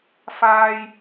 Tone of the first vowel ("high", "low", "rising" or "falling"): low